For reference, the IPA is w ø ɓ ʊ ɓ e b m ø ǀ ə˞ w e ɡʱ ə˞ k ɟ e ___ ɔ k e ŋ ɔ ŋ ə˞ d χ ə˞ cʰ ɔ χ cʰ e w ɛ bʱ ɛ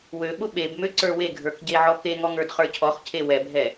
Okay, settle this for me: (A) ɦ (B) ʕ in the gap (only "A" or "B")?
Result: B